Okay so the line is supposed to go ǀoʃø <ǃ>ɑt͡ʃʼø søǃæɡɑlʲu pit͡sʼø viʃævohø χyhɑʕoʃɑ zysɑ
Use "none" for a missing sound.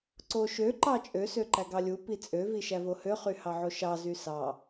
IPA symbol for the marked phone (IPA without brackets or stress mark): ǃ